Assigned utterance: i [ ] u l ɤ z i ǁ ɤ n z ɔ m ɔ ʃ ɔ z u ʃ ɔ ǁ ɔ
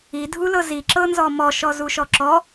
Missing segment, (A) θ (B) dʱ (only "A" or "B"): B